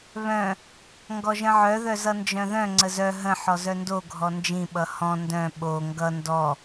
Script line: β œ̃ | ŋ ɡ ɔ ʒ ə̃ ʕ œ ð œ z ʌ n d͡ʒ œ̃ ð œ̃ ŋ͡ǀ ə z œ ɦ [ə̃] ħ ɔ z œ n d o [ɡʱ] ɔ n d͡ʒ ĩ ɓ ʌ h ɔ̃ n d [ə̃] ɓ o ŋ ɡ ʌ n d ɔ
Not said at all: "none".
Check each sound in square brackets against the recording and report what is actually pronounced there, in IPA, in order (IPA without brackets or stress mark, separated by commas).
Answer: ə̃, ɡʱ, œ̃